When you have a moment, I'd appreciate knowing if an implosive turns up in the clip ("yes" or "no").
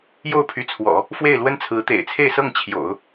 no